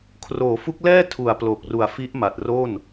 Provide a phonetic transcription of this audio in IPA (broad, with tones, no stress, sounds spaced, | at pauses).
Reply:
kʰ r oː˩˦ f u˦˥ k̚ l ɛː˥˩ tʰ u˩˦ a̯ p l o˨˩ k̚ r u˨˩ a̯ f i˦˥ ʔ m a˨˩ t̚ r o˥˩ n